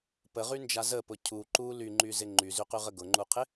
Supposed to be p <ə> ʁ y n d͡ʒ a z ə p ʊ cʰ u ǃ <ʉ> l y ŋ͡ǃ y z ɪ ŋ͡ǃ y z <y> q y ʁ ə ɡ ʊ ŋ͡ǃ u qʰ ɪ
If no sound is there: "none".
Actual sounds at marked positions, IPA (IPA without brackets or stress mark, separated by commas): ə, u, y